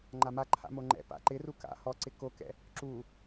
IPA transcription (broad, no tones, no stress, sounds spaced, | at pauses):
ŋ͡ǃ a m a ǃʰ a̰ m o ŋ͡ǃ ɛ̰ p a̰ ǃ ɪ r u k a̰ h ɔ ǀ ɪ k o k ɛ̰ | ǁ u